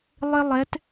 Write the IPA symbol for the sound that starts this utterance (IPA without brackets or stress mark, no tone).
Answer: lˠ